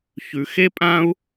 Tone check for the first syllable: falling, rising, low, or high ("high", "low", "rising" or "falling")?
low